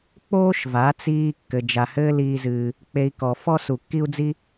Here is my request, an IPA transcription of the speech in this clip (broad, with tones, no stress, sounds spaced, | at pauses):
k͡p oː˥ ʃ v a˩˥ t͡s iː˧ kː ɘ˩ d͡ʒ a˩ h ɘː˥ l iː˧ z ɨː˩ | k͡p e˧ i̯ k ɔ˩ f ɔ˥ s u˩ kː i˥ u̯ d͡z i˥